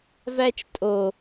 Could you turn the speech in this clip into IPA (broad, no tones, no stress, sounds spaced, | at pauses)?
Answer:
v æ t͡ʃ tʼ o